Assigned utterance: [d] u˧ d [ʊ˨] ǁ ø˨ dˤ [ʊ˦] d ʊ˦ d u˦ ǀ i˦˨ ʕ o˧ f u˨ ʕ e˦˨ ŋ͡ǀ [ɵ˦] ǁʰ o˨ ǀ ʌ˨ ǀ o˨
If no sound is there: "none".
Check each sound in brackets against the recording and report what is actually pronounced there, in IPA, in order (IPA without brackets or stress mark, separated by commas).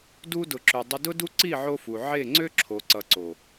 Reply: d, ʊ˨, ʊ˧, ø˦